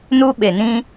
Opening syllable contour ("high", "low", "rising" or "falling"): high